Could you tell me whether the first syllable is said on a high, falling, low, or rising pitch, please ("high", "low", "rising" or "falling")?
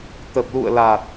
low